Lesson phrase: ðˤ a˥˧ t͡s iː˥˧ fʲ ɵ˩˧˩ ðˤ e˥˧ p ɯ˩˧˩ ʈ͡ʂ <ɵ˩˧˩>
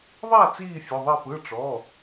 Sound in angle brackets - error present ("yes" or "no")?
yes